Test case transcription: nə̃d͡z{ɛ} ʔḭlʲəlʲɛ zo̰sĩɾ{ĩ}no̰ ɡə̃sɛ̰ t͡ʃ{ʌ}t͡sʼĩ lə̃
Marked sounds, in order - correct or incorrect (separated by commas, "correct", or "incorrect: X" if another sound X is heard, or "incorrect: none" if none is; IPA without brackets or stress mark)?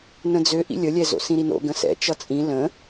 incorrect: ø, incorrect: i, correct